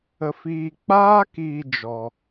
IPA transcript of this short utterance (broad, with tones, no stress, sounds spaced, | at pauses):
ə˧ f iː˧ k͡p aː˦ k iː˧ d͡ʒ ɔ˧